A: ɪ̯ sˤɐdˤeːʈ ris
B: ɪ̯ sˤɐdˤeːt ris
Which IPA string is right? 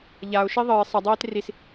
B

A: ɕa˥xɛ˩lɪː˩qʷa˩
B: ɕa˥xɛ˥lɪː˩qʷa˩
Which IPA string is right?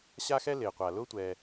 B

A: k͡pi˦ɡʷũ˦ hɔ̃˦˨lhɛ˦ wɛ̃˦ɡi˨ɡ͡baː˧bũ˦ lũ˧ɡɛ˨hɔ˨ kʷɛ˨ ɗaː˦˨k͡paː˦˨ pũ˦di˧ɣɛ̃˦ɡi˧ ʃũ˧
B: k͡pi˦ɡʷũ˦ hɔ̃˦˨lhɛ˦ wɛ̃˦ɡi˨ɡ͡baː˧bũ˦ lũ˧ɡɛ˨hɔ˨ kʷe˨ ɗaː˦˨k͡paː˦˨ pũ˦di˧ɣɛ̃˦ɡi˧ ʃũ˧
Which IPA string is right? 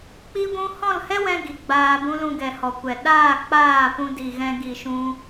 A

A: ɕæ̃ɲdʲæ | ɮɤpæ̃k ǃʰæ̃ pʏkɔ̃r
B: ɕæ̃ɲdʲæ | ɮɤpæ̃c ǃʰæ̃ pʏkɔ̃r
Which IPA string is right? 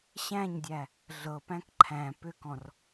A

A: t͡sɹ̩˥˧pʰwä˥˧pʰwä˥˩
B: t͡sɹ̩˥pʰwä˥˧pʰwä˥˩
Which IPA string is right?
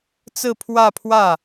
A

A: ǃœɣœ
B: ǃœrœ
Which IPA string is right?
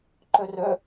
B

